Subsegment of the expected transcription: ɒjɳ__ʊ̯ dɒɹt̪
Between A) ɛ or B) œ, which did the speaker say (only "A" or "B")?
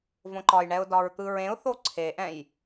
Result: A